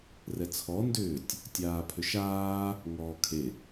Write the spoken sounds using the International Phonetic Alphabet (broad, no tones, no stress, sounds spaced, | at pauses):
r ɛ t͡sʰ ɔ n d ʏː tʲ | tʲ aː pʰ ʏ ʃ aː | ŋ ɔː kʰ e